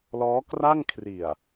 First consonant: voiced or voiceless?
voiced